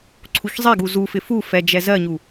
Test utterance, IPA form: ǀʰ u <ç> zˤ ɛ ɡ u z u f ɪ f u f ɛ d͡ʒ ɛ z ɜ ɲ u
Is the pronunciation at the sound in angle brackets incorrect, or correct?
correct